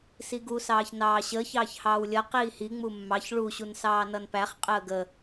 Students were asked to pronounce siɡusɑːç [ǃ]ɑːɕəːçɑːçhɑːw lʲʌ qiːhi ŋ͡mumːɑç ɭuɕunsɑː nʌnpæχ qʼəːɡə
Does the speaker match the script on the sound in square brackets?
no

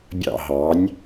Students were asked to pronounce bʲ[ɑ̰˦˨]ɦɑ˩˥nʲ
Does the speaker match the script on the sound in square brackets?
yes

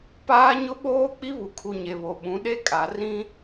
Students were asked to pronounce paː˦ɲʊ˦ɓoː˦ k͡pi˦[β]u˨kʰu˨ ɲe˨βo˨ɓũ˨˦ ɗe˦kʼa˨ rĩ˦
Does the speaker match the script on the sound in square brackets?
yes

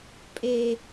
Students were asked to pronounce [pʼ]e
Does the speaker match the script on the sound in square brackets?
yes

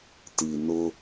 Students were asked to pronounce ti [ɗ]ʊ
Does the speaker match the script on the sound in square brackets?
no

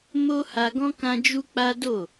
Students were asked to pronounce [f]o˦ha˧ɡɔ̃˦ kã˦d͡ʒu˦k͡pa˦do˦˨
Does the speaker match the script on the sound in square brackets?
no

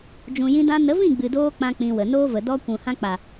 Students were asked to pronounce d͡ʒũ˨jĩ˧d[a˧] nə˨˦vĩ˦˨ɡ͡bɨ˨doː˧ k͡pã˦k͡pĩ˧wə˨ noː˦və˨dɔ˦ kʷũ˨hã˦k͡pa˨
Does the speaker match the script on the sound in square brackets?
no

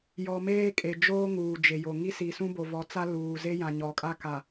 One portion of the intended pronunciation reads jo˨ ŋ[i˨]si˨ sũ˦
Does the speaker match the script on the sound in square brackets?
no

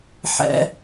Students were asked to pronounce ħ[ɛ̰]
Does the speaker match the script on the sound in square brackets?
yes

